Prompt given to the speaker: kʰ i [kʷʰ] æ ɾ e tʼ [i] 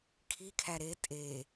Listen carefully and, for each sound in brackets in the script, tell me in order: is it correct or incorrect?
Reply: incorrect, incorrect

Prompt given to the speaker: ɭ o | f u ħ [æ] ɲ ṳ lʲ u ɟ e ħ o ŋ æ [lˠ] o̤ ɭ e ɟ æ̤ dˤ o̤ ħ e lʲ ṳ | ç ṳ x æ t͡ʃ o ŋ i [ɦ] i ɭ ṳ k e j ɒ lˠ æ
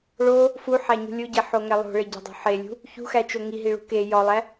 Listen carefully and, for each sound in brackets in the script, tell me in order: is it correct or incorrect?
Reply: correct, correct, correct

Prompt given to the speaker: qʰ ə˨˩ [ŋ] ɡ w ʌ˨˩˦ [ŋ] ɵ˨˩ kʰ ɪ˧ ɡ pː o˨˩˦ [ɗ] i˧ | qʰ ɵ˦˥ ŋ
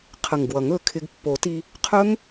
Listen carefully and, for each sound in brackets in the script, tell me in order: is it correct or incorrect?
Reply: correct, correct, incorrect

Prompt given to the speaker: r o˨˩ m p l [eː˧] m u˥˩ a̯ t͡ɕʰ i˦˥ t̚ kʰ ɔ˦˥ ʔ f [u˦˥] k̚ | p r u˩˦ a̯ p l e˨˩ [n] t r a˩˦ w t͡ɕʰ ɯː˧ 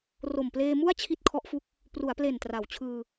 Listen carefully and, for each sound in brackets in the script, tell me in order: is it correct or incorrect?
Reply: correct, correct, correct

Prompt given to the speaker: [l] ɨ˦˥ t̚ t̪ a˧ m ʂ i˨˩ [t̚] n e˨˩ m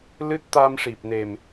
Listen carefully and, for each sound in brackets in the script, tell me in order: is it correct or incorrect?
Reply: correct, incorrect

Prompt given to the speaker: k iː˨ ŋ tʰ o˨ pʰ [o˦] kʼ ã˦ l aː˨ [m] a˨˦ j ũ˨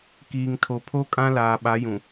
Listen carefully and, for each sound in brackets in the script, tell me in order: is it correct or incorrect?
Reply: correct, incorrect

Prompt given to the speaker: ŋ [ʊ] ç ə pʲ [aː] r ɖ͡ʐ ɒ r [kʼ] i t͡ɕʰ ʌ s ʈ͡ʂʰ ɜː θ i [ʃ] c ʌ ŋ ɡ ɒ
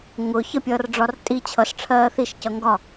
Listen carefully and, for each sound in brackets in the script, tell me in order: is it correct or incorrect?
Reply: correct, incorrect, incorrect, correct

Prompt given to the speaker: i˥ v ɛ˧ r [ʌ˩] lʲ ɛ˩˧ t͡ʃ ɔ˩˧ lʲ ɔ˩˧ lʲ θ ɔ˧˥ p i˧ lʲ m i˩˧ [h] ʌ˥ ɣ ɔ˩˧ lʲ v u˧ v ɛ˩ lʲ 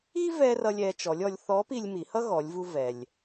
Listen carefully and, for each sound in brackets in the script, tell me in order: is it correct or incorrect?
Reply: incorrect, correct

